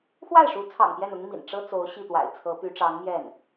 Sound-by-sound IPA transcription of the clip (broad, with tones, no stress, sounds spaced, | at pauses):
x w a˥˩ ɪ̯ ʂ u˧˥ t͡sʰ ɑ̰˨˩ ŋ p j ɛ˥˩ n ʊ˥ ŋ m ḭ˨˩ n ʈ͡ʂ ɤ˥ t͡s o˧˥ ʊ̯ ɕ i˥˩ t̪ w a̰˨˩ ɪ̯ t͡sʰ ɤ˧˥ p y˧˥ ʈ͡ʂ ɑ˧˥ ŋ m j ɛ˥˩ n